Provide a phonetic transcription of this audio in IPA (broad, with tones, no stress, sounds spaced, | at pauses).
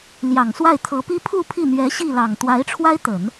l j ɑ˨˩ ŋ s w a˥˩ ɪ̯ t̪ʰ ɤ˧˥ p i˥ pʰ u˥˧ pʰ i˥˩ n̪ ɥ ɛ˧˥ ɕ i˥˩ l ɑ˨˩ ŋ t̪ w a˧˥ ɪ̯ ʈ͡ʂʰ w a˥ ɪ̯ t̪ ə˨˩˦ n